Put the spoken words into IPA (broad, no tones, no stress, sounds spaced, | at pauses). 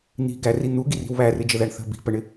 n̪ i̤ ɡ æ r i n̪ u ɡ i r i̤ w β æ r ɪ d͡ʒ ə ð æ ɳ θ ə̤ b i̤ p ə ɳ ɪ